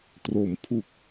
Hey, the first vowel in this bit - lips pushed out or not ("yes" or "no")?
yes